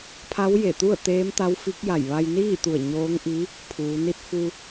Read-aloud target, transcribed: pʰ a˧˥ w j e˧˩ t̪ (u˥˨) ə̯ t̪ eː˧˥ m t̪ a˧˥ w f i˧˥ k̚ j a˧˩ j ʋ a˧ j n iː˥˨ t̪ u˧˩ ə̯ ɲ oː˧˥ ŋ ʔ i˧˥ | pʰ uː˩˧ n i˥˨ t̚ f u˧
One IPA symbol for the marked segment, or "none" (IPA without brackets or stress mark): u˥˨